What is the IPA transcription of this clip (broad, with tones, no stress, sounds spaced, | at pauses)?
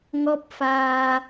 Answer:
ŋ ɔ˦˥ p̚ f aː˧